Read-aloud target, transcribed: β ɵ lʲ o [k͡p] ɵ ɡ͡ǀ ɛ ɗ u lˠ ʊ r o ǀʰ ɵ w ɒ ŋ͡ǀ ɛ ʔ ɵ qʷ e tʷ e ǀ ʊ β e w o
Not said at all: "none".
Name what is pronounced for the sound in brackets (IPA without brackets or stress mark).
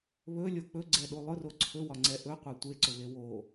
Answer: k͡p